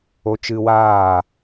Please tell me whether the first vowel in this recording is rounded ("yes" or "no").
yes